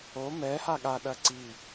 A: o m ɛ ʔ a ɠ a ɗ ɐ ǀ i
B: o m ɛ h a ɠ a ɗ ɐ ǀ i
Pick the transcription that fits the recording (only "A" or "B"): B